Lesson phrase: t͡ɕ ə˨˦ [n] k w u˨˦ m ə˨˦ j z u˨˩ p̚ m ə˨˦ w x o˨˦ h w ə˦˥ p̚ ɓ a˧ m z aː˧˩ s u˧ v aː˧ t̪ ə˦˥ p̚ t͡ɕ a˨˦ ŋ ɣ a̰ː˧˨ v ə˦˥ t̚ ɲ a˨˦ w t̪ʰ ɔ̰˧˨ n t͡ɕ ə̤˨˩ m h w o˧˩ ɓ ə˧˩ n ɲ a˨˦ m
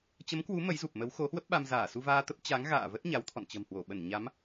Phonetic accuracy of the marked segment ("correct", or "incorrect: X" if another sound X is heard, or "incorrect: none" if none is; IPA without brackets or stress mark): incorrect: m